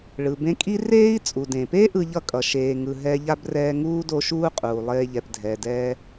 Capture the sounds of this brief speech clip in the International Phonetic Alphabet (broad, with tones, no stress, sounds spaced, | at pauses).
ɭ ɯ˩ b ẽ˦ kʼ i˥ r eː˦ i̯ t͡sʼ u˩ d ẽ˩ p e˥ ʔ ɯ˦ ʎ ʌ˥ kʼ ʌ˩ ʃ eː˨ ŋ ɯ˨ ɦ ɛ˦ ʎ a˥ b r ɛː˦ ŋ uː˥ d o˦ ʃ uː˥ qʼ uː˩ lˠ eː˦ ʎ ɛ˨ p dʱ ɛ˩ d ɛː˦